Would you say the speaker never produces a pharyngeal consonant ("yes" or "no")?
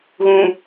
yes